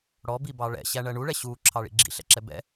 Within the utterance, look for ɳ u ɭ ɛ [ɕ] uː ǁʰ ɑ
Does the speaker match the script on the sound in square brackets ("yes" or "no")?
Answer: yes